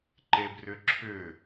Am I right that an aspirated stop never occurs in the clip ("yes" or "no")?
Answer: no